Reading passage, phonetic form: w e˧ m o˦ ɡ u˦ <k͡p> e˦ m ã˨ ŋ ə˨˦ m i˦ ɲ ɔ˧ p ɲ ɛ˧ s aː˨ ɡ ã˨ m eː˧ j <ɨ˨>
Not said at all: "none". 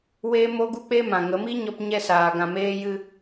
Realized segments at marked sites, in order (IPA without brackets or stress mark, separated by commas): k͡p, ɨ˧